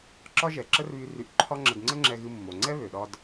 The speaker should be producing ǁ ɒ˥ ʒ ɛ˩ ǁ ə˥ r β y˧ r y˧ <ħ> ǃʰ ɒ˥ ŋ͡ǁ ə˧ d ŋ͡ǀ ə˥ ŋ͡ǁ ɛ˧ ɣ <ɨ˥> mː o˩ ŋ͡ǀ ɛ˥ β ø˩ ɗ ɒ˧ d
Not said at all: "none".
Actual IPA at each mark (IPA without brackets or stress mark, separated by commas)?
ʔ, ɨ˧